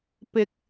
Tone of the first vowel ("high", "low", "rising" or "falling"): low